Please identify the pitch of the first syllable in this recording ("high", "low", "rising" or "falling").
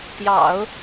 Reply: low